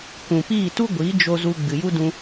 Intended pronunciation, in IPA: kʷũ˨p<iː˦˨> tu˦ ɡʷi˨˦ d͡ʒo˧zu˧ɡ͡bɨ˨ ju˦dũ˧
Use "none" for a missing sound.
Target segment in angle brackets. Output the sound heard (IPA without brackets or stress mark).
iː˦˨